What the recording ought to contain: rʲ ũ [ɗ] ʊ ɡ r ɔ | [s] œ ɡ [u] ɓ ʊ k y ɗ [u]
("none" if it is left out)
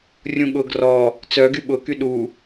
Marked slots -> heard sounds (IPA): ɠ, t͡s, y, u

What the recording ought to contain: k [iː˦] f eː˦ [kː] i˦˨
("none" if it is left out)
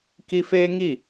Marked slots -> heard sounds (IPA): i˦, ŋ

